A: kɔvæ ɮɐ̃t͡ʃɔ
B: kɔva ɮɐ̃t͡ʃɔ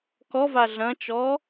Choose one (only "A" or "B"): B